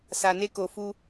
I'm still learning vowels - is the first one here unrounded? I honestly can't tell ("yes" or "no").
yes